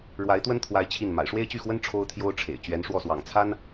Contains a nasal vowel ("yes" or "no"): no